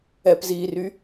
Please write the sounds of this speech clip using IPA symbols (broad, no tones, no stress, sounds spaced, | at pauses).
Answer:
ɛ p z iː r y